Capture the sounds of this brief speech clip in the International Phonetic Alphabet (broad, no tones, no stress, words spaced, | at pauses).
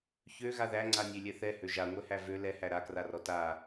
çø ɣaðæŋ͡ǀa nʲølʲɛθɛ høʒaŋʷɛhæ vø lɛhæ ɾakrarɔ ta